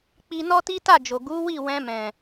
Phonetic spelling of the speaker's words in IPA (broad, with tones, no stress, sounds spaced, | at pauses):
k͡p i˧ n ɔ˦ t i˦ t a˦˨ d͡ʒ o˨ ɡ u˨˦ w i˦˨ w ɛ̃˧ m ɛ̃˨